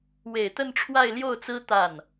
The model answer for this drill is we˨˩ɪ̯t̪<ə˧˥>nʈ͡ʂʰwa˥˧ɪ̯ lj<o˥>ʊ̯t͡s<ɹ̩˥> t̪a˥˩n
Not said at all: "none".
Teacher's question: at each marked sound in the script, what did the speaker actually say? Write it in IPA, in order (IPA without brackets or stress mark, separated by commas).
ə˥˧, o˥˩, ɹ̩˥